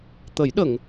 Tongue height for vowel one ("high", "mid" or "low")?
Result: mid